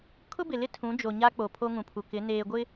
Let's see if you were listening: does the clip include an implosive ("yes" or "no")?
no